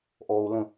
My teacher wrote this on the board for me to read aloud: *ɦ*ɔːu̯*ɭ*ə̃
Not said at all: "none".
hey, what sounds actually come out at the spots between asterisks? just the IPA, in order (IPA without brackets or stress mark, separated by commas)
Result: ʔ, l